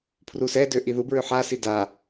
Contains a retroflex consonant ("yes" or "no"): no